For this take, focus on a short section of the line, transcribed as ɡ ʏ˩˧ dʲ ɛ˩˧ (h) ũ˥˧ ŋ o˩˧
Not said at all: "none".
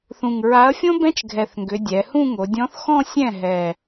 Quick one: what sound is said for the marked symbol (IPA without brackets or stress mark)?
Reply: h